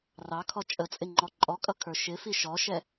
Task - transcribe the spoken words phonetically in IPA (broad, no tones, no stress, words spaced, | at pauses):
rɑkʰɔ t͡ʃʼət͡sʼɪ ŋ͡ǃɔǃʼɔkʼʌ kʰə˞ʃɪfi ʃɔʃɛ